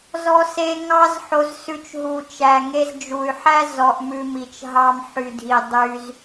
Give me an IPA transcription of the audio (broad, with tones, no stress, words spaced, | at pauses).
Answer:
zɔ˧se˧ ŋɑ˧zħo˨zsʉ˨t͡ʃ ɦu˨t͡ʃæ˨ŋe˧z d͡ʒu˨y̯ħæ˦ zɔ˧ʔmʉ˧mi˨t͡ʃ ɦɑ˧mħy˨dʱi˨ dˤy˧z